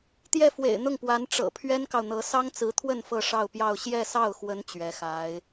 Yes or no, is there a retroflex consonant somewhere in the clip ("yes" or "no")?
yes